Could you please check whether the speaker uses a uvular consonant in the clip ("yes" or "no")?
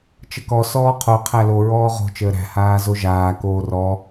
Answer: yes